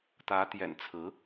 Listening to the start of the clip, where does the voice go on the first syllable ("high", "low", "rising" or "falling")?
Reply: rising